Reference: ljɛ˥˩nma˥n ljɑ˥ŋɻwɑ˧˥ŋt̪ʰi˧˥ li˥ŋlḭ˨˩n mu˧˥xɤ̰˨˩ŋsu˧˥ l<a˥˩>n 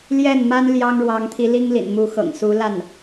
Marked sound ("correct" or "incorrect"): correct